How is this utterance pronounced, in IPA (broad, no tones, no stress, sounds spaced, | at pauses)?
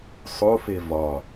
sˤ o f e v ɒ